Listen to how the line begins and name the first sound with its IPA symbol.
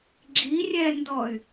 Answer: ɡ͡ǁ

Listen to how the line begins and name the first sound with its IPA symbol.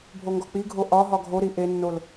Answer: bʱ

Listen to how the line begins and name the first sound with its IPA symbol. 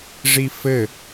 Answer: ʐ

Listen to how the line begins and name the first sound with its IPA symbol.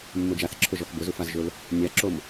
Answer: mː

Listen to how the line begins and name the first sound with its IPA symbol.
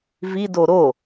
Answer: v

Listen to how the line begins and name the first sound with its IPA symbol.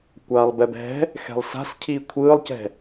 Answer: kʷ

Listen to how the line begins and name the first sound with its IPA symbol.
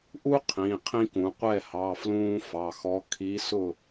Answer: ʔ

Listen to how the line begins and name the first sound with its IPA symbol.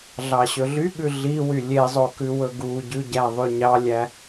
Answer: ɮ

